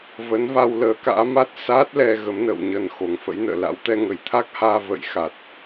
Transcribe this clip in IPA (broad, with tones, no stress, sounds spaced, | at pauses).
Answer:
v ə˨˦ n v a˧ w l əː˨˦ k a̰ː˧˥ m a˦˥ t̚ s aː˦˥ t̚ l ɛ˧ ɣ ə˨˦ m n ə̰ː˧˨ w ɲ ə˨˩ n x o˨˩ ŋ f ə̰˧˥ j n ə̰ː˧˨ l a̰˧˥ w t̪ ɛ˧ ŋ ə˧˩ j t̪ʰ a˦˥ k̚ h aː˧ v ə̰˧˨ j x a˨˩ t̚